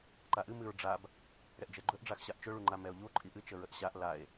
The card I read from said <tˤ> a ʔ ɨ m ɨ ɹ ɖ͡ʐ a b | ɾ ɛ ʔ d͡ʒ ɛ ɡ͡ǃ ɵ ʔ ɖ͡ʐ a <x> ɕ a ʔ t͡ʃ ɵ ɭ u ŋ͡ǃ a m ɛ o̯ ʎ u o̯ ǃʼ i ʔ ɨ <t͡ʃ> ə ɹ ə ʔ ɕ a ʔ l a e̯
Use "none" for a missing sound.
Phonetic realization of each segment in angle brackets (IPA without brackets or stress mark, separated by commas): ǃ, x, t͡ʃ